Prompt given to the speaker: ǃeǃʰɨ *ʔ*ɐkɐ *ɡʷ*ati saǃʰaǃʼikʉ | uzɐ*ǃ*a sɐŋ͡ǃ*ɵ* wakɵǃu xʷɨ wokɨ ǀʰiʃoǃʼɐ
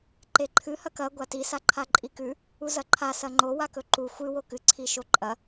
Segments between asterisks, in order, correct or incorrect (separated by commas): incorrect, correct, incorrect, incorrect